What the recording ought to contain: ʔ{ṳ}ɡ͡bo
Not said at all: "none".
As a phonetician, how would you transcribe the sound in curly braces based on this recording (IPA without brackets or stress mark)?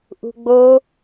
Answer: ṳ